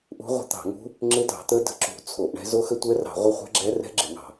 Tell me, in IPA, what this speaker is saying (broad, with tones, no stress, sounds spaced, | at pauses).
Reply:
ʔ ṳ˦˥ ʁʷ ə̤˦˥ t̪ ɑ̤˧˩˧ ŋ ṳ˦˥ | ŋ͡ǁ ɪ˦˥ d ɑ̤˧˩˧ t̪ ə˦˥ d ə̤˦˥ ǁ ṳ˧˩˧ t͡sʰ o˧˩˧ ʔ ɳ ɛ̤˦˥ z o˦˥ x ə˦˥ tʷ ɛ˦˥ r ɑ̤˧˩˧ ʁʷ ə˦˥ χʷ ɛ̤˦˥ ɡ͡ǁ ɛ˦˥ r ɛ̤˦˥ ɡ͡ǁ ɪ˧˩˧ ŋ ɑ̤˧˩˧